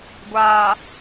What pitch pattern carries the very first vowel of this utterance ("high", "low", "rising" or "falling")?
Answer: low